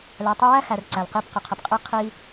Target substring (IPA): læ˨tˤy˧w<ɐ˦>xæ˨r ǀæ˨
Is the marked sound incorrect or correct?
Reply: incorrect: æ˦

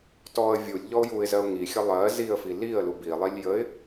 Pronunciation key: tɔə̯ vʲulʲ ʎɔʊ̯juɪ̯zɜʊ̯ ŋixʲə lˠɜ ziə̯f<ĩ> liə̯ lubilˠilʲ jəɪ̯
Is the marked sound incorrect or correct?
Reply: incorrect: i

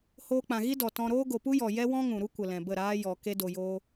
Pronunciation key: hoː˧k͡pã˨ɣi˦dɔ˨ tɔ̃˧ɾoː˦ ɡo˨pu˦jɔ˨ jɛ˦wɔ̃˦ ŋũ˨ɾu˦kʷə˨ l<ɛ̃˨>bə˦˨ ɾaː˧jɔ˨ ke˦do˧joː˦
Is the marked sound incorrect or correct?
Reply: correct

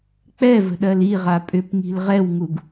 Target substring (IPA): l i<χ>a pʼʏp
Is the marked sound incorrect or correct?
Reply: incorrect: ʁ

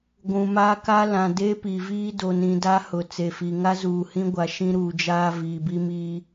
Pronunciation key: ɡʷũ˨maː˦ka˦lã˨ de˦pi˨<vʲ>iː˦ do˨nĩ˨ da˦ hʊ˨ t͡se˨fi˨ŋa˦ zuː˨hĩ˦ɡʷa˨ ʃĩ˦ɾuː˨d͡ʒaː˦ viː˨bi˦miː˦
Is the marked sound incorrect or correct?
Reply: incorrect: v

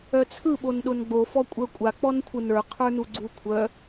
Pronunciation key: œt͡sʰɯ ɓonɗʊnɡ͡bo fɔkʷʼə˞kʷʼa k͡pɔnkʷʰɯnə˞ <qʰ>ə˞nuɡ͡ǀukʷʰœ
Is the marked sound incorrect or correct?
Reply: correct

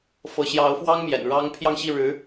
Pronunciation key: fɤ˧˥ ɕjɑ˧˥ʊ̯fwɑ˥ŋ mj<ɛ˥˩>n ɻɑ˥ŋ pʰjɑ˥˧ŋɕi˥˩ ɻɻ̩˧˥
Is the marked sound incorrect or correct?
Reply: incorrect: ɛ̰˨˩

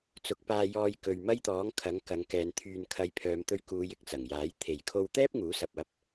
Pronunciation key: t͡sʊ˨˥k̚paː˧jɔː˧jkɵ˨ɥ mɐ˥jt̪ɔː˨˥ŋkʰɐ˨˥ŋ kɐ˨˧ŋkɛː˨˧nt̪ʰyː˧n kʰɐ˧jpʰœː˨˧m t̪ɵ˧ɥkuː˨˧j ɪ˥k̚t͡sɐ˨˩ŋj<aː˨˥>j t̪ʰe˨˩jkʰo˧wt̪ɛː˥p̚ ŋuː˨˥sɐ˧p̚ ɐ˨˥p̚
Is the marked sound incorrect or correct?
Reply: correct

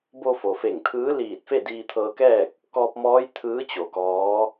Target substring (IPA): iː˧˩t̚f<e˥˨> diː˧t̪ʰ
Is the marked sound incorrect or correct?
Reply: correct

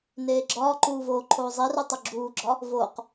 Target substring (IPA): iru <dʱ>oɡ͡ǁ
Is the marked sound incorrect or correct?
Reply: incorrect: tˤ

